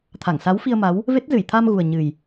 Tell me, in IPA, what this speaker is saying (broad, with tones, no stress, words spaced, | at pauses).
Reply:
t̪ʰa˧˩ŋsa˨˦wfi˧ə̯ ma˨˦w | ve˦˥t̚zɨ˧˩jt̪ʰa˧mɣu˨˩ə̯ ɲɨ˨˩j